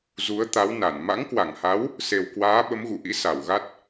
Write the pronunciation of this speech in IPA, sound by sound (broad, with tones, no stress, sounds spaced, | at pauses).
z u˨˦ ə̯ t̪ a˨˦ w n a˧˩ n m a̰˧˥ ŋ k w a˧˩ ŋ h a˨˦ w | s e˨˩ w k w aː˨˦ ɓ ə˨˦ m ɣ ṵ˧˨ ʔ ḭ˧˥ s a˧˩ w ɣ a˦˥ t̚